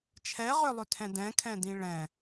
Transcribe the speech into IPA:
t͡ʃʰ ɛ ʁ ʏ lˠ ʏ tʰ ɛ̃ d ɛ̃ kʰ ɛ̃ d ĩ ɭ ɛ̃

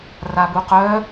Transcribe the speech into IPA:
r a b u q œ

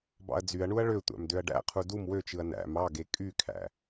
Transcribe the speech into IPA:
b ɑ̰ ɐ̯ d͡z y ɐ̯ ɳ u ɐ̯ ɭ ø tʷ æ̰ m d ø ɐ̯ ɖ æ̰ qʰ u d u m w ø t͡ʃ ɯ ɐ̯ n æ̰ m ɑ ɡ e kʼ y kʰ æ̰

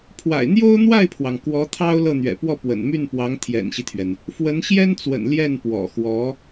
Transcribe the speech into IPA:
pʰ w a̰˨˩ ɪ̯ n̪ j o˥ ʊ̯ n̪ w a˥˩ ɪ̯ pʰ w ɑ˩ ŋ k w ɔ˧˥ t̪ʰ ɑ˥ ʊ̯ l ɤ˥˩ n̪ ɥ ɛ̰˨˩ p w ɔ˥˩ p w ə̰˨˩ n m y˥˩ n p w ɑ˧˥ ŋ t̪ʰ j ɛ̰˨˩ n ɕ i˦ t̪ʰ ɥ ɛ˩ n | f w ə˧˥ n ɕ j ɛ˥ n t͡s w ə̰˨˩ n l j ɛ˥˩ n p w ɔ̰˨˩ x w ɔ˧˥

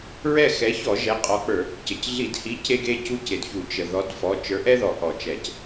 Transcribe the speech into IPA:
ɹ ɛ˦˨ x ɛ˨˥ ç ɔ˧˩˧ ʒ ɛ˩˧˩ qʼ ɔ˨˥ k͡p ə˞˧˩˧ | c ə˩ c ɮ i˧˩˧ d h i˨˥ c e˥ ɡ e˥ c u˥ c e˩ d ç u˧˩˧ t͡ʃ ə˩ ð ɔ˨˥ d f ɔ˩˧˩ t͡ʃ ə˞˨˥ ʔ ɛ˥ ð ɔ˩ ʔ ɔ˧˩˧ t͡ʃ ɛ˧˩˧ c

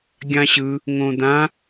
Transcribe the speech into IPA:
ɡʲ ã ɕ ɯ | ŋ õ d̪ ã

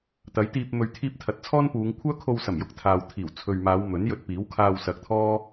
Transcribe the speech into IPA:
t̪ ɐ˨˥ j t̪ iː˧ p̚ m ɵ˨ ɥ t̪ʰ iː˧ p̚ t̪ʰ ɐ˨ t̚ t͡sʰ ɔː˥ n p uː˨˧ ŋ kʷʰ œː˥ kʰ o˧ w s ɐ˨˩ m j ʊ˧ k̚ t̪ʰ aː˨ w t̪ʰ iː˨˩ w t͡sʰ ɵ˨ ɥ m aː˨˧ w m ɵ˨˥ n j ɵ˧ t̚ p iː˨˥ w kʰ aː˧ w s ɐ˨˥ k̚ t̪ʰ ɔː˥

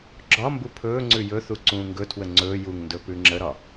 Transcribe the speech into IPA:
ɡ͡ǁ ɒ m b u pʰ ɵː ŋ͡ǀ ʉ j ɵ θ u ǀ ũː ŋ ɡ ɵ tʰ w ə ŋ͡ǀ ɵː j u ŋ n d ɵ p ʉ ŋ͡ǁ ə ɾ ɒ

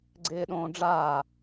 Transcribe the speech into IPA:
ɡ͡ǀ ɪː ɗ õː ɖ͡ʐ aː

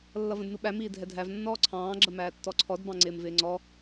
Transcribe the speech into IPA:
lː ʌ v ə̃ d n u ɓ æ m iː dʱ ɛ dʱ æ v nː ɔː ǀʰ ɑ̃ː ɡ͡ǁ ə m æː tː ɔ ǀʰ ɔ d b ɑ̃ ŋ͡ǀ ɪː m v ɪː ŋ͡ǀ ɔ

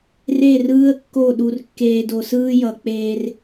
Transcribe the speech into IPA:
r e˦˨ r ɯː˦ ə̯ kː o˦˨ ɗ u˨ r kː eː˨ d o˨ s ɯː˦ j ʌ˨ k͡p eː˦ r

